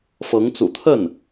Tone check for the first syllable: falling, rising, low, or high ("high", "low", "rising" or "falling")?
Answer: rising